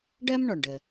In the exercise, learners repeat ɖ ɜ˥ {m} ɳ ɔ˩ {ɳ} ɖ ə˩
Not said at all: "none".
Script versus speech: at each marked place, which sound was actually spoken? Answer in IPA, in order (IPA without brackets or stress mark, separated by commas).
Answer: m, ɳ